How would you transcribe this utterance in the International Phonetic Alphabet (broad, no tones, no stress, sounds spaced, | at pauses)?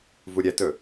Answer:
v u ɾʲ ɛ t ɵ